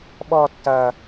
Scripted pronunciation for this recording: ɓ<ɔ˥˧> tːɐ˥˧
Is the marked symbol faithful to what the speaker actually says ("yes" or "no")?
yes